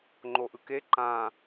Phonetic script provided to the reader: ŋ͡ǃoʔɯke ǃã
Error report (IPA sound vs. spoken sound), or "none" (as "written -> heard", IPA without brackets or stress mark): none